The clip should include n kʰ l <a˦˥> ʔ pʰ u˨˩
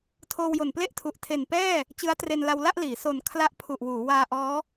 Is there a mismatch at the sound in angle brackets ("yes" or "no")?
no